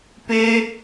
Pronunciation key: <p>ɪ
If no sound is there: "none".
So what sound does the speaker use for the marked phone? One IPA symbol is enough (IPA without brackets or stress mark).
p